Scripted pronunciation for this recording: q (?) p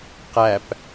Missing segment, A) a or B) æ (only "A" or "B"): B